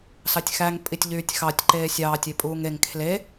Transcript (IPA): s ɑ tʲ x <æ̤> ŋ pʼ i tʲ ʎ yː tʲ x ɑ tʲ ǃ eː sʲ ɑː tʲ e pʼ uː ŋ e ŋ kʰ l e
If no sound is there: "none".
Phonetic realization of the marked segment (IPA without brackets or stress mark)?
æ